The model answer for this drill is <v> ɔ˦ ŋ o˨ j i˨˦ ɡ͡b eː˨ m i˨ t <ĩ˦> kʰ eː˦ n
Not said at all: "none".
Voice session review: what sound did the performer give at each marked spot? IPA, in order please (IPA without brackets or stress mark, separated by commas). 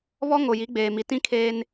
β, ĩ˦